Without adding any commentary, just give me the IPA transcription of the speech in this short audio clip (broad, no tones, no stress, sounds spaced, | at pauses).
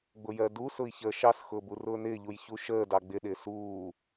ɡ͡b ʊ j ɜ d u s ʊ i̯ ç əː ʃ ɑ s x ʊː b u r ʊː n ɪː ʎ u j ç u ʃ əː d ɑ ɡ͡b ɪ ɗ ɪː s uː